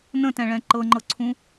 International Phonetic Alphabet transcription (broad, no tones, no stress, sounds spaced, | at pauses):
n ə̃ t ɛ̃ ɭ ɛ̃ ǃ ɤ ŋ͡ǃ ɤ ǀʰ ũ